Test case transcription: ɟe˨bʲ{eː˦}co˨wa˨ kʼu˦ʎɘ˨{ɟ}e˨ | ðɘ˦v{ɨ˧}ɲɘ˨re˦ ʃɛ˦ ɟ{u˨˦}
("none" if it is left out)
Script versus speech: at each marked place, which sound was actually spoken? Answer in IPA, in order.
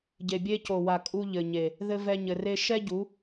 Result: e˦, ɲ, ɛ˧, u˨˦

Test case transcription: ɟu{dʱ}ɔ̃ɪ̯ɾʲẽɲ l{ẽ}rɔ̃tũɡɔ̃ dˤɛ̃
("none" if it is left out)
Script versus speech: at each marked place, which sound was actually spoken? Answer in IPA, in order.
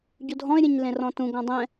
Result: dʱ, ẽ

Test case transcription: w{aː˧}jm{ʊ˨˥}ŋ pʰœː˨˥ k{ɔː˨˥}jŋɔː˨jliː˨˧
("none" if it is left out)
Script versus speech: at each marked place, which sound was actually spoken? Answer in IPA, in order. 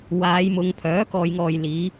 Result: aː˨˧, ʊ˨˧, ɔː˨

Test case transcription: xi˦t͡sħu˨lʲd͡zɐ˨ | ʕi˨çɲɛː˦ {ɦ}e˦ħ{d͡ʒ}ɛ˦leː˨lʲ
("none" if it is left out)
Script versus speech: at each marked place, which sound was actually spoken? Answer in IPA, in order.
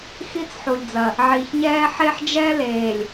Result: ħ, d͡ʒ

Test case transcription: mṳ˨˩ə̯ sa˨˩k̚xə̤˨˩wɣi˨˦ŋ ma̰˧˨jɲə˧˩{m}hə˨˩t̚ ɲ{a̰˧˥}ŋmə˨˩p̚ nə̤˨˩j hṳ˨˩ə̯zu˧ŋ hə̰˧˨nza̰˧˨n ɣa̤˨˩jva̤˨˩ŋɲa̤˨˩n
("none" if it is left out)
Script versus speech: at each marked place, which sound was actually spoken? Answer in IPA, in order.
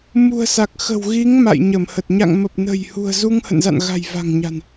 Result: m, a̰˧˨

